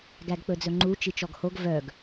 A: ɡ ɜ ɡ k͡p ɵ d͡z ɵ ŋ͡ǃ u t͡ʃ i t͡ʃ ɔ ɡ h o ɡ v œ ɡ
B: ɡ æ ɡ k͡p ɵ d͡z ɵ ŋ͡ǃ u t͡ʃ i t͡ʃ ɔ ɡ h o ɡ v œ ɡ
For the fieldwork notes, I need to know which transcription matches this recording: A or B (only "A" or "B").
B